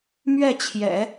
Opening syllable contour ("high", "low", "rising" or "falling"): falling